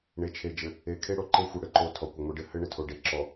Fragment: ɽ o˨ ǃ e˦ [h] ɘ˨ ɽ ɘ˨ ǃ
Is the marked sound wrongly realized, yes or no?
yes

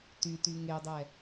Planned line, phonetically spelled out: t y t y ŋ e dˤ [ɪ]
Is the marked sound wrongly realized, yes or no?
yes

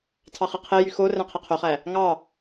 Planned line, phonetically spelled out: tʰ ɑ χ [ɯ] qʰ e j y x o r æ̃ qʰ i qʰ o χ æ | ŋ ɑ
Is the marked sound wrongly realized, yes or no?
no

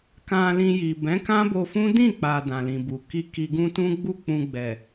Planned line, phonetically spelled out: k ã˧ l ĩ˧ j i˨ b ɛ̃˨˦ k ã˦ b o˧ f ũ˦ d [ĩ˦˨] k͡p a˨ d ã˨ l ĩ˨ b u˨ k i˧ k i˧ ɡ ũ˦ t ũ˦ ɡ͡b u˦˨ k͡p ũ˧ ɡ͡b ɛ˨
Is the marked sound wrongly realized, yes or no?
no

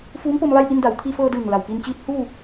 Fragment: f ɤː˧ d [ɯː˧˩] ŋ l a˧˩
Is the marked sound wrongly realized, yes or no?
no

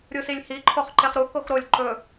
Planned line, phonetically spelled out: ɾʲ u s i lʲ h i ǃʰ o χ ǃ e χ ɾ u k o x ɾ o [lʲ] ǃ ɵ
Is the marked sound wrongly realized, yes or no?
no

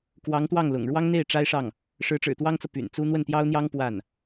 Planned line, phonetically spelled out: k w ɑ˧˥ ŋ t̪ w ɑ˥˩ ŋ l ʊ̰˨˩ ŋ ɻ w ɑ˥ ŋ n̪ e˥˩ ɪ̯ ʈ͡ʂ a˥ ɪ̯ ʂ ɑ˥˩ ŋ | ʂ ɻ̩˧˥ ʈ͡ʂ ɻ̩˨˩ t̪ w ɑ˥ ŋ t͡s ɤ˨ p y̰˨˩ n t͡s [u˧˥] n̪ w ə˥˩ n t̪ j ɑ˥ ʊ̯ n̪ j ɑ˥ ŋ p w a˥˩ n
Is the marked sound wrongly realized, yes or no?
yes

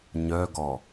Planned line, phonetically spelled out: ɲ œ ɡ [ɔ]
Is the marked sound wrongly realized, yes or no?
no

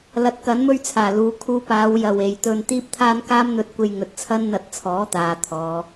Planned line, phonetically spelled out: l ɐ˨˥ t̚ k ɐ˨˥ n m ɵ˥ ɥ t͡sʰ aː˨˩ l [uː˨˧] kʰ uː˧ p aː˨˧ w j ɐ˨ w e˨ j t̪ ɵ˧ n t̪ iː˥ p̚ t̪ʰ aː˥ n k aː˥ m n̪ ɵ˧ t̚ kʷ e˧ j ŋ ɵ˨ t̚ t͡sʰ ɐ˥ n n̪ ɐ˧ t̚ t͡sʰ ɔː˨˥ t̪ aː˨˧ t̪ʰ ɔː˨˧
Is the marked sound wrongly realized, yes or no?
no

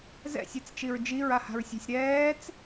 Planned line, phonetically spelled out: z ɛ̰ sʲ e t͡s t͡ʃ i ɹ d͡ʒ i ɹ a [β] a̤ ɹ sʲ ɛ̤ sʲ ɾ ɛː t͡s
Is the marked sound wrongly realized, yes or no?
yes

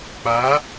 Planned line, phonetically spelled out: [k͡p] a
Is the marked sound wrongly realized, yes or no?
no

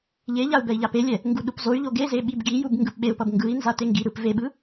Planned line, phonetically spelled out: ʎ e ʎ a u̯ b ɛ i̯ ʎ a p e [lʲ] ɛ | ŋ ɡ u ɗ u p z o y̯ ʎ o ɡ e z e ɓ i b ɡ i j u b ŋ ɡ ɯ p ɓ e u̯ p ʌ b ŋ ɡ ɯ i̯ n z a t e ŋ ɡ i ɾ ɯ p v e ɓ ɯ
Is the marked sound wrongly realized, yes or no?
no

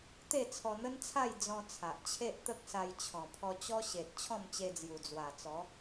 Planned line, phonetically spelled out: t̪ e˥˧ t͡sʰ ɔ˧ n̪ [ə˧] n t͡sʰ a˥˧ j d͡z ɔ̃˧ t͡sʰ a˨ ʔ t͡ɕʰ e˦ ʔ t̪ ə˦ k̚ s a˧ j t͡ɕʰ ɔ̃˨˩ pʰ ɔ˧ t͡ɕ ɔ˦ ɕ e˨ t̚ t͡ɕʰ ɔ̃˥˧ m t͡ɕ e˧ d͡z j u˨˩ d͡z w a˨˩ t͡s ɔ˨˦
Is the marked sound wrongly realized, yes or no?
yes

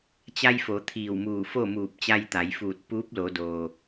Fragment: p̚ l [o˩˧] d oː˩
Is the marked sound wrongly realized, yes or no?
no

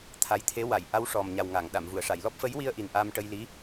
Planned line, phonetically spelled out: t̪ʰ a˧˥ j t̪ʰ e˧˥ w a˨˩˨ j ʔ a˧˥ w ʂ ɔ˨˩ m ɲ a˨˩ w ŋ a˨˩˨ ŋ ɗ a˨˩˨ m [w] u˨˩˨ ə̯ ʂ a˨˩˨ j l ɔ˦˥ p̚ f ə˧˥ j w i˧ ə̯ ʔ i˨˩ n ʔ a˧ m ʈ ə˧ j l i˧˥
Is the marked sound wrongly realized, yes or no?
yes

